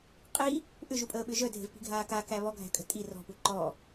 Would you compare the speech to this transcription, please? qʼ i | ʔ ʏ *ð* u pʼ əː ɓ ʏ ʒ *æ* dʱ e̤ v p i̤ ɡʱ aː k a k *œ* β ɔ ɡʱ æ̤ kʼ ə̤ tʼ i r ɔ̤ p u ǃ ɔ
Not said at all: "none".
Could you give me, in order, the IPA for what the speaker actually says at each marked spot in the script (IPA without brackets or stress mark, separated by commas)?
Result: ʒ, œ, æ